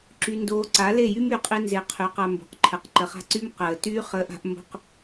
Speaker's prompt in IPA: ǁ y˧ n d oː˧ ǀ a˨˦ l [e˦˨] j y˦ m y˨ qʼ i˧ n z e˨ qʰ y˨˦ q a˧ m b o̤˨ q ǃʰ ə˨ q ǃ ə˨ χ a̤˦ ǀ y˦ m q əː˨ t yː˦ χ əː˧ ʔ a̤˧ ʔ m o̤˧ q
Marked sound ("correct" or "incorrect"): correct